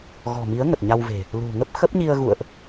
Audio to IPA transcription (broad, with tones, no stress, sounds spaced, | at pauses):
ɣ ɔ̤˨˩ m i˨˦ ə̯ ŋ ə˨˩ t̚ ɲ a˧ w v e̤˨˩ | l ṳ˨˩ ŋ ə˦˥ p̚ x ə˦˥ p̚ ɲ i˧ ə̯ ɣ ṵ˧˨ ə̯ ʔ